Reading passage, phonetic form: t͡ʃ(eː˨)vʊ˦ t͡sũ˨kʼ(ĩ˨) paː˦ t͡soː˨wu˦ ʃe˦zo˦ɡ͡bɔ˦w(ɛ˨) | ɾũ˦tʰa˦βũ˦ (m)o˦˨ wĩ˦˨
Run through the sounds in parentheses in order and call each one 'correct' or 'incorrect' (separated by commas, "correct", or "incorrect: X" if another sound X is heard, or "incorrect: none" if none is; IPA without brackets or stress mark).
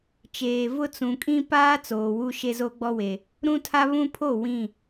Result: correct, incorrect: ĩ˦, incorrect: e˨, incorrect: pʰ